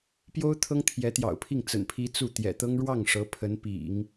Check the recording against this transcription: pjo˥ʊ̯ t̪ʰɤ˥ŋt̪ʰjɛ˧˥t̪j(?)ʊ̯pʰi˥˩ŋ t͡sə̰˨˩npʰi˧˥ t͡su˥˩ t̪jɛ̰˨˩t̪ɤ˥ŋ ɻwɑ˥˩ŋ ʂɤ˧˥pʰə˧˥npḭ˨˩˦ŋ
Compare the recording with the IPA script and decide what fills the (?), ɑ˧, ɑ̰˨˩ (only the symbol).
ɑ̰˨˩